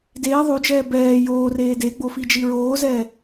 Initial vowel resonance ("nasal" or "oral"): oral